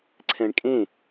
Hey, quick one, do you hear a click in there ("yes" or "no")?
yes